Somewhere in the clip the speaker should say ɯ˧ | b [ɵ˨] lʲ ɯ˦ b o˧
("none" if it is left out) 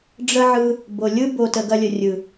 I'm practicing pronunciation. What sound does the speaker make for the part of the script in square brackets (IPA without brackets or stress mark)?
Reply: o˨